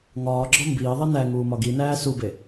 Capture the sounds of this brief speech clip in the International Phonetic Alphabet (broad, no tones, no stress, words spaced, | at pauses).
ŋɒːɡ͡ǁɒ mbiːðˤi næ ŋuːmɒɡinæː sube